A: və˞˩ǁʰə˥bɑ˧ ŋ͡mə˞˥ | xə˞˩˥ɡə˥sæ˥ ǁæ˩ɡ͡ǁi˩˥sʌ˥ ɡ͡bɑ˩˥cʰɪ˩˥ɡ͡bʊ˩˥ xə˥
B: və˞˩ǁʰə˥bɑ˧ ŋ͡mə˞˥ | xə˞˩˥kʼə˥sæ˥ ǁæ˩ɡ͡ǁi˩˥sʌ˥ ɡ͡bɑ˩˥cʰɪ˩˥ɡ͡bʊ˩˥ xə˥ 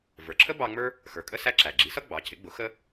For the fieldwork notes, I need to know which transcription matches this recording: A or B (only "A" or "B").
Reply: B